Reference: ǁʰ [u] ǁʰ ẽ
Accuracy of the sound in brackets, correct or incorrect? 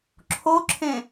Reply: incorrect: o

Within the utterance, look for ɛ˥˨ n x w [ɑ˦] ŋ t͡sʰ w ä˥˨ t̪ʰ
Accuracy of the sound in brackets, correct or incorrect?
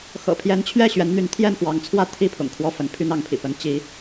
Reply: incorrect: ɑ˨˦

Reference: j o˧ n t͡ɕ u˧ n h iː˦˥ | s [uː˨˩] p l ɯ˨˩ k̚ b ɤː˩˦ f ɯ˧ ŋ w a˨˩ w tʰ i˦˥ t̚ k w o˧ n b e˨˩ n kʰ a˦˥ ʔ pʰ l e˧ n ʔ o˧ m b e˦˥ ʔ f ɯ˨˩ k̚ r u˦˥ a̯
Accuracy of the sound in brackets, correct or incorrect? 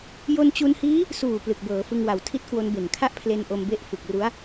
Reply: correct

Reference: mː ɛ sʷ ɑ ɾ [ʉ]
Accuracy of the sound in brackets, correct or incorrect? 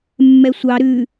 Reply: correct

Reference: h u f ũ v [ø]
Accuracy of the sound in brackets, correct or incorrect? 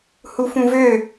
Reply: correct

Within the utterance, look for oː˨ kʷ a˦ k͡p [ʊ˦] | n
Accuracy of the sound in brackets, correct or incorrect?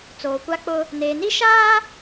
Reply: correct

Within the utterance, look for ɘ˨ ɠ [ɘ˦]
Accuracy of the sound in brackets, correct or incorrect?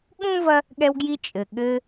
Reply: correct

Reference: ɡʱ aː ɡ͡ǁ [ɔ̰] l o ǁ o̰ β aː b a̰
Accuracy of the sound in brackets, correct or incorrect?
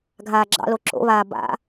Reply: incorrect: ɑ̰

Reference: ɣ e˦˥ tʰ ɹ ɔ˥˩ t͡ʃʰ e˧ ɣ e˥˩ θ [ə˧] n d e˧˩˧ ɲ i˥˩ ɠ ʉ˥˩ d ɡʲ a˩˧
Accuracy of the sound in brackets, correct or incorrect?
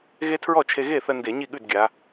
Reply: correct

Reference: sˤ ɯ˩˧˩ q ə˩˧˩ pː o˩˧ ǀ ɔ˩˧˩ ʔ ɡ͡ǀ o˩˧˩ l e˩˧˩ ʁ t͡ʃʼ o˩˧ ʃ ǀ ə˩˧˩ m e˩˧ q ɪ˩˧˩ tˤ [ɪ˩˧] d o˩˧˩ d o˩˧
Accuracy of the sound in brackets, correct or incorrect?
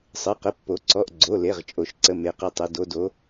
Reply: incorrect: ɪ˩˧˩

